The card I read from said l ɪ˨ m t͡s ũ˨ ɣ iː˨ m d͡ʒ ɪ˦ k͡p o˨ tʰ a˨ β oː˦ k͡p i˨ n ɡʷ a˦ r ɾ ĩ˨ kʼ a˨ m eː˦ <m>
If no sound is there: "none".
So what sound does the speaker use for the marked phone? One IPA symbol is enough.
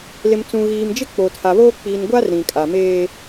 none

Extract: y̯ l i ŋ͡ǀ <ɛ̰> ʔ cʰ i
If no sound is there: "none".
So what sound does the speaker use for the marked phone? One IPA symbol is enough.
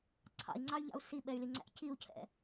æ̰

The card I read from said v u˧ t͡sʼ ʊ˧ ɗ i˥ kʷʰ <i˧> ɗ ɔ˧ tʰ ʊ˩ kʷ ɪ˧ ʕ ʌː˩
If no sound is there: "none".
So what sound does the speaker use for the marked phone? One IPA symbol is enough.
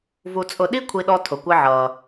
i˧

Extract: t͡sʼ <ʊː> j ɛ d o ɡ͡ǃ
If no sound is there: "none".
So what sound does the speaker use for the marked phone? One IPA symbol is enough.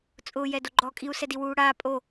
ʊː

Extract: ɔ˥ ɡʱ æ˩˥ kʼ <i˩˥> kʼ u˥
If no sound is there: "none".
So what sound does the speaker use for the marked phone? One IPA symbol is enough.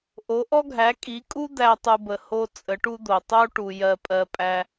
i˩˥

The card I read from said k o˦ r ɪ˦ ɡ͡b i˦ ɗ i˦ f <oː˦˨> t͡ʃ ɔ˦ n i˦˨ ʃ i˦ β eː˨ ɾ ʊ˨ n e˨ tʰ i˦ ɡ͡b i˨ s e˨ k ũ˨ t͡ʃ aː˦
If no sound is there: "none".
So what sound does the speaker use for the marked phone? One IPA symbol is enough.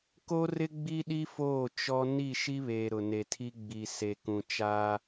oː˦˨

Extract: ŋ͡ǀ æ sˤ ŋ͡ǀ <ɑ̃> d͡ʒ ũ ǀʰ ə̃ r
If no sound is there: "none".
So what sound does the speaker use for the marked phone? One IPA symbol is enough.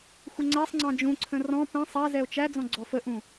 ɑ̃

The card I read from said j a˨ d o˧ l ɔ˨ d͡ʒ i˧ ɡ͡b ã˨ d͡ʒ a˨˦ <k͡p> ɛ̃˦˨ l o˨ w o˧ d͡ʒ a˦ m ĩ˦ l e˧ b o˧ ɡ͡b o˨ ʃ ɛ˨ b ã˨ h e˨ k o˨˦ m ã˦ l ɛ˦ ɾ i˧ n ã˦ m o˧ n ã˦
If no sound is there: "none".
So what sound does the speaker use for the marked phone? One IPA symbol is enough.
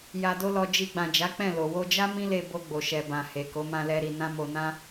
k͡p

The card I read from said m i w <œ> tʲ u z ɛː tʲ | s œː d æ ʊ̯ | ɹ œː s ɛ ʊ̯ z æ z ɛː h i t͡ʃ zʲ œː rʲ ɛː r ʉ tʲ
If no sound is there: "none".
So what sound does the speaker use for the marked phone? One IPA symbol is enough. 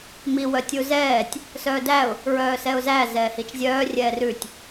œ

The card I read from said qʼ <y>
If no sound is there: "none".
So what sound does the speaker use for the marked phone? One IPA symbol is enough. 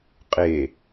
e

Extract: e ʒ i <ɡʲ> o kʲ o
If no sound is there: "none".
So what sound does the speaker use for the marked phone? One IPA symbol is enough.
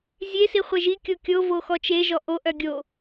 kʲ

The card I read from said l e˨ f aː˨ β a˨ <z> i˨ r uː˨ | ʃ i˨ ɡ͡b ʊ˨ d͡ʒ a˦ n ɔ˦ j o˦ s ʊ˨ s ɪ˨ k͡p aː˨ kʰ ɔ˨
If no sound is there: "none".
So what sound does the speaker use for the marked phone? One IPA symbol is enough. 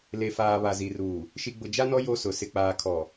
z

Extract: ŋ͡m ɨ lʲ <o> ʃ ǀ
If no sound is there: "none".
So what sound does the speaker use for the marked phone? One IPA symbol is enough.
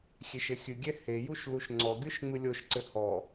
o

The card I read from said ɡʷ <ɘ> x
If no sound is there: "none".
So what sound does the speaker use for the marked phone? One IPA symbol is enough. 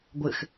ɘ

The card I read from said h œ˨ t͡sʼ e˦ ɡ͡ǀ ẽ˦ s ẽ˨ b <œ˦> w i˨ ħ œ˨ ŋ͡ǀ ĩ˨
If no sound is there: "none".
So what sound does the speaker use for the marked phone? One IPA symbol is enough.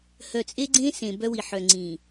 œ˦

